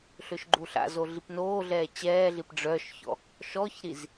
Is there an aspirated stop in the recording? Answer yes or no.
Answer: no